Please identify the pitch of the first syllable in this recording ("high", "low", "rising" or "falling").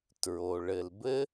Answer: low